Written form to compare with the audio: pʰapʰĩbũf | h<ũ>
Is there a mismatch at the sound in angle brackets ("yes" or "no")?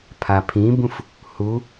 yes